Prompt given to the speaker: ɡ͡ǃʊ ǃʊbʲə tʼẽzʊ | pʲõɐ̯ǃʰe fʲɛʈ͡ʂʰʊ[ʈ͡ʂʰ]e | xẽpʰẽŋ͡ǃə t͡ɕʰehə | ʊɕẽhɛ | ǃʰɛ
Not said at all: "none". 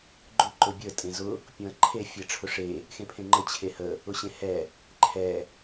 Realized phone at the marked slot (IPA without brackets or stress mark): ʂ